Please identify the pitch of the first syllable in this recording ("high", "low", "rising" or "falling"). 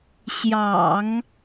low